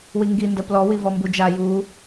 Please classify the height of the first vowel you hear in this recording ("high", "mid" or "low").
high